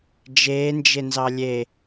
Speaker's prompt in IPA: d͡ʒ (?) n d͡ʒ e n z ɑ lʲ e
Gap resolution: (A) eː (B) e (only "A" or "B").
A